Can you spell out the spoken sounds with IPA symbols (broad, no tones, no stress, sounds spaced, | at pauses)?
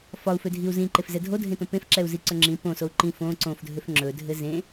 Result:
f ɒ u̯ f ø dʱ i u̯ z ĩ ǃ e f z ɛ dʱ o dʱ ẽ t õ p ẽ f ǁ ɛ u̯ z i ǀ ɵ ŋ͡ǁ ĩ p õ s o u̯ ǃ ĩ f õ ǀ õ f dʱ ø f ŋ͡ǁ ɵ dʱ ɘ z ẽ